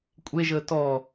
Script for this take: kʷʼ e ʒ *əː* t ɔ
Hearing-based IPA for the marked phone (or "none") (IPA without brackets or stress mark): əː